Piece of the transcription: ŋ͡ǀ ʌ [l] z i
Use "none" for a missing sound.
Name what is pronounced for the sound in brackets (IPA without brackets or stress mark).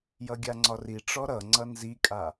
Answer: n